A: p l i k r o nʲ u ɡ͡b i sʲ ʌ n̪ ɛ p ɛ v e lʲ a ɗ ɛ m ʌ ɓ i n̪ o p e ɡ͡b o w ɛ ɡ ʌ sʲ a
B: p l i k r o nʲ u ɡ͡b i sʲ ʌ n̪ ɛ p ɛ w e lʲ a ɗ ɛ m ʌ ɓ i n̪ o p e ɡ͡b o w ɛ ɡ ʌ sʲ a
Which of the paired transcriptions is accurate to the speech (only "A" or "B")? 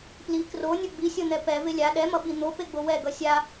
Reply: A